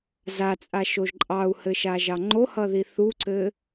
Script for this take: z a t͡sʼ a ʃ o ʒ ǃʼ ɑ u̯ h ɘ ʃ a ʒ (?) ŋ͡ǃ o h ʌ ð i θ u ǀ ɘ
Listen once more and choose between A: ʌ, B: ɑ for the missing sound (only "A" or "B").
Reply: B